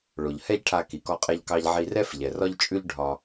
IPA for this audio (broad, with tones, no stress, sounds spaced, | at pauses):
ɭ o˩ ʎ h ɛ˥ ʎ ʈʰ a˧ k i˩ k ɔ˧ qʼ ɛ˧ ʎ k ɑ˧ ʎ ʕ i˧ r ɛ˥ f ʎ ɛ˩ r ɒ˥ ʎ t͡ʃʼ ʉ˥ ʎ ɖʱ ɒ˧